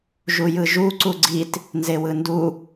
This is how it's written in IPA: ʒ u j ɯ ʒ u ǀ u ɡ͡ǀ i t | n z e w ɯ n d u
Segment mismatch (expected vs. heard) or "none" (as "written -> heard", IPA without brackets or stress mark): none